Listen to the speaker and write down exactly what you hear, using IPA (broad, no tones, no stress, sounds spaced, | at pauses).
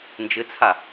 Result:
n d͡ʒ ɘ t͡sʰ a